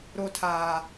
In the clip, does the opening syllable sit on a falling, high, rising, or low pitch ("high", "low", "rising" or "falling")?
low